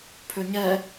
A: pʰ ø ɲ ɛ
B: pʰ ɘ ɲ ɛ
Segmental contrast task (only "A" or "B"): A